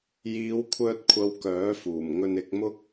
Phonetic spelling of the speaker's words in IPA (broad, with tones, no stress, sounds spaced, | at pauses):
j iː˨˧ w kʷʰ œː˧ t̚ kʷʰ ɐ˧ w k œː˨˥ f uː˨˩ m ŋ ɵ˧ n ɪ˧ k̚ m ʊ˥ k̚